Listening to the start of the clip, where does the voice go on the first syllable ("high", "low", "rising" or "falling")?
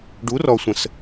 rising